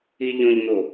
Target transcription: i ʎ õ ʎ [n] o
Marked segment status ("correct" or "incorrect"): correct